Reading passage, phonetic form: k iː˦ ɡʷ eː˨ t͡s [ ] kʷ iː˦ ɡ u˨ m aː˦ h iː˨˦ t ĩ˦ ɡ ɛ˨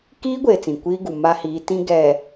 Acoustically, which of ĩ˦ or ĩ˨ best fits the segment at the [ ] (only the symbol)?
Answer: ĩ˨